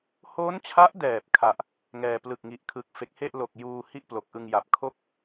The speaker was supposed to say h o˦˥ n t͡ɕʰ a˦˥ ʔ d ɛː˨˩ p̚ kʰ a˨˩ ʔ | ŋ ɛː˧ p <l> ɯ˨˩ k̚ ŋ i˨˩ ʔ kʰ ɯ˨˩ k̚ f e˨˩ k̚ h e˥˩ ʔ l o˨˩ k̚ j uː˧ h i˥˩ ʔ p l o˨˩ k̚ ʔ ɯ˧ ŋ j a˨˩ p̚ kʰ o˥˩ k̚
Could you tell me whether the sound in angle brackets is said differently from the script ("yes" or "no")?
no